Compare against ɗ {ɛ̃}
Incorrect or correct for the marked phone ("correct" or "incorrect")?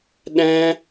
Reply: correct